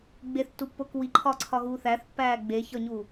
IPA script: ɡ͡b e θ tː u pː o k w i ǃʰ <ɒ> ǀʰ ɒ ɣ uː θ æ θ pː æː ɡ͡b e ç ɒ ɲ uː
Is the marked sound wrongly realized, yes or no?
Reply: yes